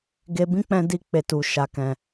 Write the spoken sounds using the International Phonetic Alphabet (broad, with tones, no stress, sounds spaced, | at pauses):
ɡ e˧ b ĩ˦ k͡p ɛ̃˧ d i˧ k͡p e˨ t u˨ ʃ a˨ k ɛ̃˨